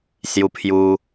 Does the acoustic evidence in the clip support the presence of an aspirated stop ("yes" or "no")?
yes